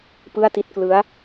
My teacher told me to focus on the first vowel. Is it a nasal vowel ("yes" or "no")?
no